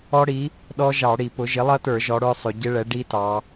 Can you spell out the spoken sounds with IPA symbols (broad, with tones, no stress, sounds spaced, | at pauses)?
ɔ˦˥ ɽ i˩˥ | ɗ ɔ˦˥ ʒ ɑ˧˩˧ ɽ i˧˩˧ p ʊ˩˥ ʒ ɪ˩˥ lˠ ʌ˦˥ t ə˞˧˩˧ ʒ ɔ˩˧ ɽ ə˞˦˥ sˤ ʊ˩˧ ɟ ɪ˦˥ ɭ ɛ˩˥ ɖ i˦˥ t ɑ˩˧